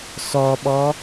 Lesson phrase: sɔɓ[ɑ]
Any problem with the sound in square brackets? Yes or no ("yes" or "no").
yes